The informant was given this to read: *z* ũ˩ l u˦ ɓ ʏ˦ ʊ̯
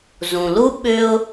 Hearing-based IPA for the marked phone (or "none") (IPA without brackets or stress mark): z